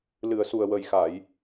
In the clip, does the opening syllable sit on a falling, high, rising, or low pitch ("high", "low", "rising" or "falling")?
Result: low